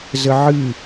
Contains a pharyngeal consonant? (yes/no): yes